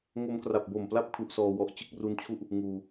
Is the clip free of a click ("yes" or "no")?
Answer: yes